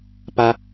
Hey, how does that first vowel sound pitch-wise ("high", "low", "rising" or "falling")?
high